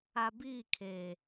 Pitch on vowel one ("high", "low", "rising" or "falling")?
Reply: low